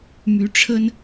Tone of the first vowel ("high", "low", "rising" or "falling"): rising